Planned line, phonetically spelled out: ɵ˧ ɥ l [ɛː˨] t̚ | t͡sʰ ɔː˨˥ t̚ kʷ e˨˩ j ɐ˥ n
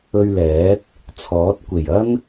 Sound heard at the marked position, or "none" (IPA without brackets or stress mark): ɛː˨˥